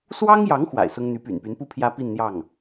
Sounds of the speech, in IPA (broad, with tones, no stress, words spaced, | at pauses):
swɑ˥ŋjɑ˧˥ŋ xwa̰˨˩ɪ̯sʊ˥ŋ n̪y˧˥py̰˨˩npy˧˥npu˥ pʰjä˥pi˥˧n n̪jɑ˥˩ŋ